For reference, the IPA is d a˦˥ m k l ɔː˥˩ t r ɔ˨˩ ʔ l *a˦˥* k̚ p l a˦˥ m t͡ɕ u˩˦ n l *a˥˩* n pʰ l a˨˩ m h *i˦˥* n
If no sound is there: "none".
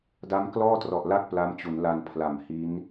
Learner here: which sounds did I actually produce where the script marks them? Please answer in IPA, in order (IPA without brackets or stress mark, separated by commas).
a˥˩, a˧, i˦˥